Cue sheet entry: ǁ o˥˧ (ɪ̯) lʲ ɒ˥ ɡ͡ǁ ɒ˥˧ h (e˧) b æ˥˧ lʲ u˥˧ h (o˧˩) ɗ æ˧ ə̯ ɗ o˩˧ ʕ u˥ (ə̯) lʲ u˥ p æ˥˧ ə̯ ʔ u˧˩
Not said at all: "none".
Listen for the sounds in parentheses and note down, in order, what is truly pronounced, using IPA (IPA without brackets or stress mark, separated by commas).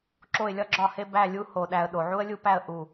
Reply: ɪ̯, e˥, o˧˩, ə̯